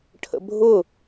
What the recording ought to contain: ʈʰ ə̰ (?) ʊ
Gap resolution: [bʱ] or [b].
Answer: bʱ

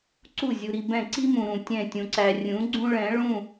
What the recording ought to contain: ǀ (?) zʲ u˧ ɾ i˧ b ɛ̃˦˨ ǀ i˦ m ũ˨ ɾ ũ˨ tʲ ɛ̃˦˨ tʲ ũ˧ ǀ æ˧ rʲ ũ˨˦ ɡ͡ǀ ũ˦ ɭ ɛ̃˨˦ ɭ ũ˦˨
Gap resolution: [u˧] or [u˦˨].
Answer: u˦˨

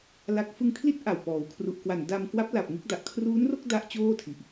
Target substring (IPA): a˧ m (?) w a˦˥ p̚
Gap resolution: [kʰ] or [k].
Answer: k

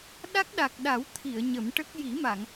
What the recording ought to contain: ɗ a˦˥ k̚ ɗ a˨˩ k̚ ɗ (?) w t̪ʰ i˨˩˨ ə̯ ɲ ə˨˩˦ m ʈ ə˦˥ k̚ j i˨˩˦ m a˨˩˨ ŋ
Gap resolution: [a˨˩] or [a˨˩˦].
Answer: a˨˩˦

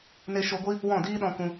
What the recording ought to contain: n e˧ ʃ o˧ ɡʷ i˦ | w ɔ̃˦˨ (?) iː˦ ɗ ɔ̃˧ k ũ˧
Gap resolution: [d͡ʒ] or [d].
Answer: d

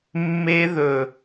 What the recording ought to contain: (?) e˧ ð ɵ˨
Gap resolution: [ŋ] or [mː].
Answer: mː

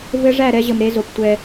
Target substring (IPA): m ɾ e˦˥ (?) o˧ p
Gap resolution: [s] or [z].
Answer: z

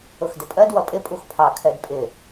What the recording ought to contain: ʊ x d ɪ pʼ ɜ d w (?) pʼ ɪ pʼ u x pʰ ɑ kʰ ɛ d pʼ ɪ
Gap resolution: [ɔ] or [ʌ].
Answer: ʌ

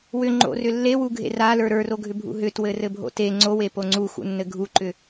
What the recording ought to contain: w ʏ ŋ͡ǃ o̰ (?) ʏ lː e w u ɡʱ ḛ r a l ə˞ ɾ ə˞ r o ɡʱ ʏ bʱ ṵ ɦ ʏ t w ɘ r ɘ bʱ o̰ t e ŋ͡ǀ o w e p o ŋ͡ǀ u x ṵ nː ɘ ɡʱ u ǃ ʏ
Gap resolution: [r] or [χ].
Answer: r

